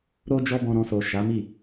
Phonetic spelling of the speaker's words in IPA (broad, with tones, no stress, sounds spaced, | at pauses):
ɾ o˦ d͡ʒ ɔ˦ b ɔ̃˧ ɾ ɔ̃˧ s o˨ ʃ a˨˦ m i˦˨